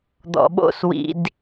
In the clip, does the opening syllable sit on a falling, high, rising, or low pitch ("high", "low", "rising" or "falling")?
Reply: low